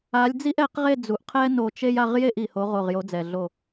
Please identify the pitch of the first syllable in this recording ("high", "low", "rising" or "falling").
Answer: rising